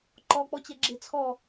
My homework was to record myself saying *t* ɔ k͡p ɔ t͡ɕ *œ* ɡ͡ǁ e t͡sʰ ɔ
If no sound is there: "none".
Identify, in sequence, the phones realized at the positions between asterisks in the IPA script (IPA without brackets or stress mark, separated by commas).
ǃ, ɛ